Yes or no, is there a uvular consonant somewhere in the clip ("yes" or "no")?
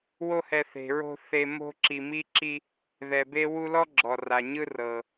no